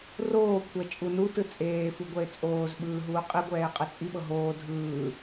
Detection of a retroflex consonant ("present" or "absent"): absent